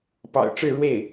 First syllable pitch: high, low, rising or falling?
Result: low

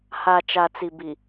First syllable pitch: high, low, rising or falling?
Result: low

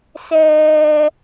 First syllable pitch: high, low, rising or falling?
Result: low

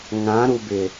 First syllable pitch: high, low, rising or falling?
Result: rising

